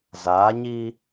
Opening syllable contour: rising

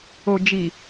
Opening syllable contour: low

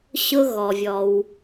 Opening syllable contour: high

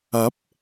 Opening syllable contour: rising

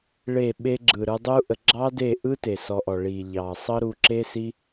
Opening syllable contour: falling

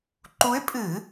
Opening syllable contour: rising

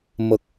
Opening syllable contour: low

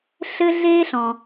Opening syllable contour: high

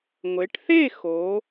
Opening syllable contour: rising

